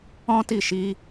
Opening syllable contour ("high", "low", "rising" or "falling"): high